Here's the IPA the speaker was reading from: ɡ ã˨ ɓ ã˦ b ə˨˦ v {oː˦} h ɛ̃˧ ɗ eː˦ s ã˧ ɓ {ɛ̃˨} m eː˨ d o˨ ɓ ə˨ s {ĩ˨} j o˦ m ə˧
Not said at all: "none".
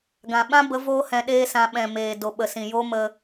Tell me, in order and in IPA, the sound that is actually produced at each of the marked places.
oː˦, ɛ̃˨, ĩ˨

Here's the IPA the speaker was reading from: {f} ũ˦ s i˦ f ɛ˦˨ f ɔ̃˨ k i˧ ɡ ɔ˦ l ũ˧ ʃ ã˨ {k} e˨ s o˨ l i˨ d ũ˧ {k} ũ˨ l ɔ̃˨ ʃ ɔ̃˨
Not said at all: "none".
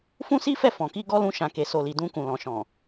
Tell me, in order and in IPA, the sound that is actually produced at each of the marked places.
f, k, k

